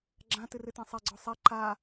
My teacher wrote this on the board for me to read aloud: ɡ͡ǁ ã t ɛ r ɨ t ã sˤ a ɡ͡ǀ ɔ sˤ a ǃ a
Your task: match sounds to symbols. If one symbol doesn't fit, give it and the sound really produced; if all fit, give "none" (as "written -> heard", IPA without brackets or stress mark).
ɛ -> ɨ